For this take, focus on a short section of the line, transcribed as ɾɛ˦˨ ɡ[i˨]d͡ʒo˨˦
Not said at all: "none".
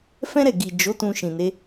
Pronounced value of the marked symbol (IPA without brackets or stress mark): i˨